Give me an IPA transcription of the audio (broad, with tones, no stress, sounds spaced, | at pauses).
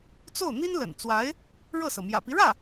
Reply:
t͡s o˥˩ ʊ̯ n̪ i˥ n l ə̰˨˩ n t͡s w a˧˥ ɪ̯ | ɻ ɤ˥˩ s ɤ˩ m j ä̰˨˩ p i˦ ɻ ä˥˩